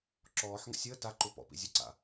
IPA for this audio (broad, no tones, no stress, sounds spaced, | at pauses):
ǁ ɔː ħ ŋ ə̰ sʲ əː t a ǃ u p ɔ̰ p ḭ zʲ ə ǀ a̰